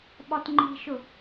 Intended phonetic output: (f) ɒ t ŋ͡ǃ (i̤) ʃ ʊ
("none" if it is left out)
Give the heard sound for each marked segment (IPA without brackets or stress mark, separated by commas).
ɓ, i̤